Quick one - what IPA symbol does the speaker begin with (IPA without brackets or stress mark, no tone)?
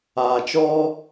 aː